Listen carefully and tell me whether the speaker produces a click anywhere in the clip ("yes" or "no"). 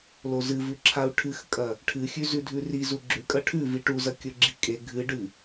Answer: yes